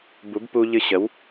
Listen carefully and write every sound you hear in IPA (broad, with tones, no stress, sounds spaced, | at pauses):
b u˨˦ b p u˧ ʎ ɨ˧ ɕ ə˨˦ w